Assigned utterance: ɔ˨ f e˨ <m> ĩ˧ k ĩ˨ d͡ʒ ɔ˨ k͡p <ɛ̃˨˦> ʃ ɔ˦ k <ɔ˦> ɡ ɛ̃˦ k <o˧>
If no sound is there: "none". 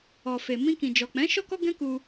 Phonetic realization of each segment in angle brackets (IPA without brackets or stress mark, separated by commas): m, ɛ̃˨˦, ɔ˦, u˧